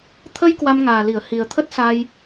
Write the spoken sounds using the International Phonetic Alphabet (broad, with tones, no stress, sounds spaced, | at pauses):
t̪ʰ ə˧ j k w a˧ m ŋ aː˨˩ l i˧˩ ə̯ h i˨˩ ə̯ t̪ʰ ə˦˥ t̚ s a˧ j